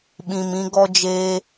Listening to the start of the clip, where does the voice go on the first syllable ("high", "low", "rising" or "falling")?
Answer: low